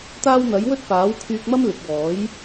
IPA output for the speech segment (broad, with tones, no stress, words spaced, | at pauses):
t̪aː˥w n̪ɐ˨˥jwɵ˥t̚ paː˨˥wkʰyː˧k̚mɐ˥mlɪ˨k̚ wɔː˨˥j